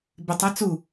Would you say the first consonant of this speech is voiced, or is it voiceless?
voiced